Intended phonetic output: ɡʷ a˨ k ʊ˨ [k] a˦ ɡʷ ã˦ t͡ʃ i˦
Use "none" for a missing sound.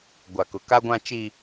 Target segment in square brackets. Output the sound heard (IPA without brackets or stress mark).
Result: k